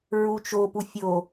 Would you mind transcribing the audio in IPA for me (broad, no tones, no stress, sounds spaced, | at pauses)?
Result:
ɹ u t͡ʃ o p u fʲ o